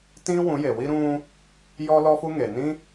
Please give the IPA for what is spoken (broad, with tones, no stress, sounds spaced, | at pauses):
t ĩ˦ w ũ˨˦ j e˨ w i˦ ɾ ũ˧ | j ɔ˦ l ɔ˦ f u˦ ŋ e˨ n ĩ˦